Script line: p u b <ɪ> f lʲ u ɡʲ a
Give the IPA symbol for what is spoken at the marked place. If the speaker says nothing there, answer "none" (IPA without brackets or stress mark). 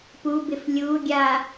ɪ